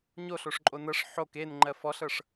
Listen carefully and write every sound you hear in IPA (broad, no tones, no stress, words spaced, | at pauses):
ɲoɬoʂǃʼo nɤʂ ħok enŋ͡ǃɜ fɔɬɤʂ